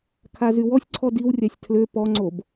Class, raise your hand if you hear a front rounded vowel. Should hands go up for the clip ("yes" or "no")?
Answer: yes